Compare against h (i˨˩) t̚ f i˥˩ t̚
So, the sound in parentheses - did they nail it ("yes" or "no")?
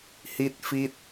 no